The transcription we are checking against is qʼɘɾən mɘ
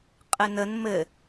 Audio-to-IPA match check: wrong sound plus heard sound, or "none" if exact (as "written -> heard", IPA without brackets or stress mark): ɾ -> n